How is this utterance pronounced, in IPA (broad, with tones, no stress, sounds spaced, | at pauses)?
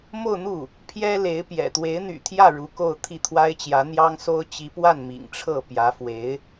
m o˥˧ ʊ̯ n̪ u˥˩ | pʰ j ɛ˥ l e˧˥ ɪ̯ p j ɛ̰˨˩ t̪ w e˧˥ ɪ̯ n̪ y̰˨˩ t̪ʰ j ä˥˩ ɻ u˧˥ k o˥˧ ʊ̯ t̪ʰ i˥˩ t̪ʰ w a˥ ɪ̯ t͡ɕ j ä˧˥ n̪ j ɑ˥ ŋ s o˥ ʊ̯ t͡ɕ i˧˥ p w a˥˩ n m ḭ˨˩ ŋ ʈ͡ʂʰ ɤ˥˩ p j ä˧˥ f w e˧˥ ɪ̯